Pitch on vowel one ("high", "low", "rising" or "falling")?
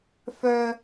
low